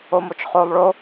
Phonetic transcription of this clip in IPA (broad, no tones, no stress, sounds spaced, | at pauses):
o m o t͡ʃ χ o lˠ ɭ o